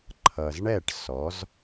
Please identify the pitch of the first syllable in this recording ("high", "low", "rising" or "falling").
low